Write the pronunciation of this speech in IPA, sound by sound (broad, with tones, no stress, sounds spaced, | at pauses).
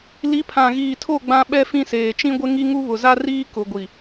l i˨˦ pʰ ã˨ ɣ iː˨ tʰ o˦˨ ɡ͡b ã˦ ɓ ɛ˦ f ĩ˦ s eː˨ t͡ʃ ĩ˦ ɡʷ ɪ˦ ŋ i˦ ŋ u˦ β ʊ˨ z a˦ r iː˦ k ʊ˨ ɡʷ i˨